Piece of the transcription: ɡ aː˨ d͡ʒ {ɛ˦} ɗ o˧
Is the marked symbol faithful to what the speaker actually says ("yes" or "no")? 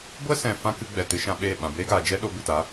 yes